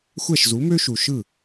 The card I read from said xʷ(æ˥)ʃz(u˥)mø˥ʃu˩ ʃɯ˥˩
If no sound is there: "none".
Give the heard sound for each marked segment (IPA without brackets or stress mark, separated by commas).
æ˥˩, u˩˥